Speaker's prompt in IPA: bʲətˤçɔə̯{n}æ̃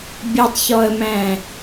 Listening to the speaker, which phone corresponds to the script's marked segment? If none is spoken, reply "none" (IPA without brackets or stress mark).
m